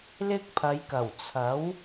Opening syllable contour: high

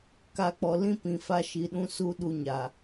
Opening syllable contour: low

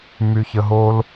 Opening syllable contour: high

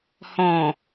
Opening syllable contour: low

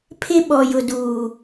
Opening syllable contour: high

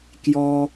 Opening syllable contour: low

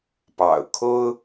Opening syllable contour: low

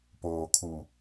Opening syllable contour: low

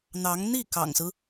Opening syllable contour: rising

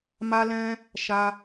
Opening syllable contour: high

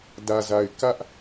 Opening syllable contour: low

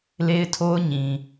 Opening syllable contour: high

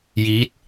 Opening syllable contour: rising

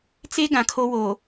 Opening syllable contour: high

